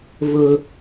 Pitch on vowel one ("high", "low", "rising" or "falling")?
high